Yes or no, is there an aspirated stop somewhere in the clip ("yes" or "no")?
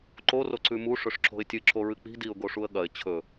yes